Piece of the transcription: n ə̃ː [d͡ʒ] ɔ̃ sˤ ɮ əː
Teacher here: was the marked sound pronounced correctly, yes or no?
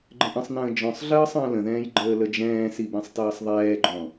yes